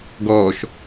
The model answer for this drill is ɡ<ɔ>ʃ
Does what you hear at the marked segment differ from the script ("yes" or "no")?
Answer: yes